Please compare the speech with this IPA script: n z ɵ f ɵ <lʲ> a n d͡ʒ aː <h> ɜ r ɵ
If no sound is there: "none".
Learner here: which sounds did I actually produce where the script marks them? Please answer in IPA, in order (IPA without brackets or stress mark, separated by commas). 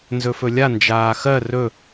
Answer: lʲ, x